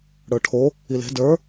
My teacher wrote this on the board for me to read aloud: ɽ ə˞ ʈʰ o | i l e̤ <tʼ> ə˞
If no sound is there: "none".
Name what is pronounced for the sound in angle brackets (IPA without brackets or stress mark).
d